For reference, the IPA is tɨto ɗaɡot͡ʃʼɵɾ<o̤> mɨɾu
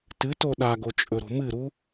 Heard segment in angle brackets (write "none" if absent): o̤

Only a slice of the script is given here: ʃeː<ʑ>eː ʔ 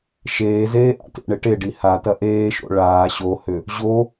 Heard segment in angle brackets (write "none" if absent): z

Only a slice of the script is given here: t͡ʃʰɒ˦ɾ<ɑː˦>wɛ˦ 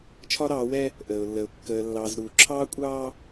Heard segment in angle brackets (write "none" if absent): ɑː˨˦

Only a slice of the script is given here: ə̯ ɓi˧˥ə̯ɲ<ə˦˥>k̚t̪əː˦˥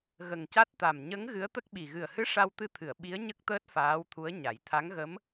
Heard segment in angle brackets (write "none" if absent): ə˦˥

